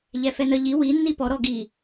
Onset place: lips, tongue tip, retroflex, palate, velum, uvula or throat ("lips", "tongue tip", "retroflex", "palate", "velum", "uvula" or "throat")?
palate